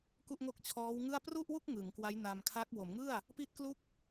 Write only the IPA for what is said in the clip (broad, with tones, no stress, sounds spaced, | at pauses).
k u˥˩ ʔ ŋ o˥˩ k̚ t͡ɕʰ ɔː˦˥ w ŋ ɯ˥˩ a̯ p r u˥˩ ʔ w u˥˩ k̚ ŋ ɯ˩˦ ŋ k w a˦˥ j n a˧ m kʰ a˦˥ k̚ w o˩˦ m ŋ ɯ˥˩ a̯ | p i˥˩ t̚ k l u˥˩ k̚